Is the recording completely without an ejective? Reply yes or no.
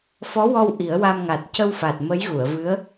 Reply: yes